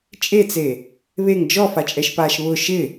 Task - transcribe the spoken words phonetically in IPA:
t͡ʃʼet͡se | βeŋ d͡ʒɔfat͡ʃʼɛʃpaːʃ βʊ ʃɪ

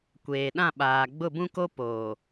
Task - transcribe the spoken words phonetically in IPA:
kʷeː˨ ɗã˦˨ɓaː˨ ɡ͡bʊ˦˨bũ˦ko˦ poː˨

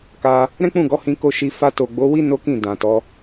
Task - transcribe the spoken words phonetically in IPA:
ka˧ | ɾɛ̃˦k͡pũ˦˨ɡɔ˨˦ hĩ˧ko˧ ʃi˧ fa˧to˨ɡ͡bo˨˦ wi˦ no˦kĩ˦˨ dã˨tɔ˨˦

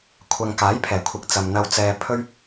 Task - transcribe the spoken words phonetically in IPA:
kʷʰɐ˨ŋkaː˨˥j pʰɛː˨˩kʷʰɪ˨˥k̚ t͡sɐ˨mn̪ɐ˧w t͡sɛː˧ pʰɵ˥ɥ

